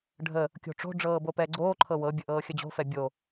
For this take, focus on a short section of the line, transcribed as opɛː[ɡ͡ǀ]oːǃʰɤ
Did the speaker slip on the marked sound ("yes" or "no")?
no